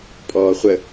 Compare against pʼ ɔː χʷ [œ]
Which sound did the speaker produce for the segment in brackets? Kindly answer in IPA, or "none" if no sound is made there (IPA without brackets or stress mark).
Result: ə